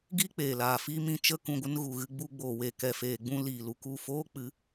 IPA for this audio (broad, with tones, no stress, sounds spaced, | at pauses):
ɡ iː˦ k͡p eː˨ l aː˨ f iː˦ m ĩ˧ t͡ʃ ə˧ k ũ˨ ɡʷ ə˧ n ɣ u˨ ɣ ɨ˧ ɡ͡b u˧ ɡ͡b oː˨ w eː˨ k ɛ˨ f eː˨ ɡ͡b ũ˧ l iː˨ l u˨ k u˦˨ f oː˦ k͡p ɨ˨˦